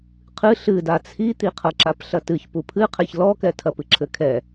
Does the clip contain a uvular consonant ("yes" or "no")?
yes